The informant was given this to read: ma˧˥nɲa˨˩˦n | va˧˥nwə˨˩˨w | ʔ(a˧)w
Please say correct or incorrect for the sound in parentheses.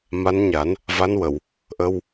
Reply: incorrect: ə˧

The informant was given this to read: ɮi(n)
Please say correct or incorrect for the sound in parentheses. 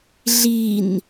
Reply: correct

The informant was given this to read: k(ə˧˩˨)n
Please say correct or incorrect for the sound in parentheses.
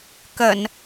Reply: correct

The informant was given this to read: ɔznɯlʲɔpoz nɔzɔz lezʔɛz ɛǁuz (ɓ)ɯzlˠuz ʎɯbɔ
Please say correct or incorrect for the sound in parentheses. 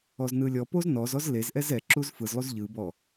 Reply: incorrect: f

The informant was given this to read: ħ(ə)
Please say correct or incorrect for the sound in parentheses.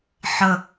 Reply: correct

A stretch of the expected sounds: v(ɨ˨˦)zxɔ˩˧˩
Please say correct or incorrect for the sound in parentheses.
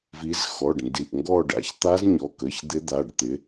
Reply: incorrect: i˨˦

